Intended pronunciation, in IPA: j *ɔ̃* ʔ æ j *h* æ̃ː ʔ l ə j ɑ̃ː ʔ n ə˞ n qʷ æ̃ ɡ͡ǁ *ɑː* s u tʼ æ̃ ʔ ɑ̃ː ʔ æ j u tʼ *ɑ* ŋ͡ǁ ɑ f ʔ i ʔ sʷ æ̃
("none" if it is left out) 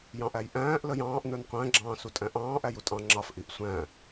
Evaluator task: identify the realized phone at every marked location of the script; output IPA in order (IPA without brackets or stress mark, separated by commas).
ɑ̃, ʔ, ɑ̃ː, ɑ̃